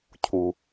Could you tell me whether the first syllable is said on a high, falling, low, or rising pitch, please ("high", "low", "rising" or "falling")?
low